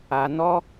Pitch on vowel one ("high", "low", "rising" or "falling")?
low